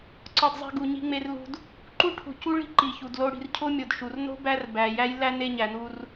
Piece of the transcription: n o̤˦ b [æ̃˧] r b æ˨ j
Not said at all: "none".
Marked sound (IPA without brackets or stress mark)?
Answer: æ˧